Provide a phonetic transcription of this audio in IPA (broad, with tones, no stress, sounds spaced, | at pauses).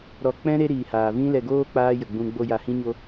ɾ ɔ˨ k͡p ɛ̃˦ ɾ e˦ ɾ iː˨ h aː˨ v ĩ˦ l ɛ˧ ɡ oː˦ k͡p aː˦ j ə˨ ɡ͡b ũ˧ ɡ͡b o˧ j a˧ h ĩ˦ ɲ o˦